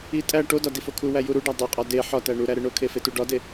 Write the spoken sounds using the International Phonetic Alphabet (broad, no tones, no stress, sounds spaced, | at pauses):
i tʼ æ ʈ o d ɒ d i f o kʰ u w æ j u ɾ u ɖ æ dˤ e qʼ ɒ d e ħ ɒ t æ ɳ u ɾ æ ɾ e ɳ o kʰ e f e t u ɖ ɒ d e